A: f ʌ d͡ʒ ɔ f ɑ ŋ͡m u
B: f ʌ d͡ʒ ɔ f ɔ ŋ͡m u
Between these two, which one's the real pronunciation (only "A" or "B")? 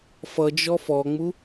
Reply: B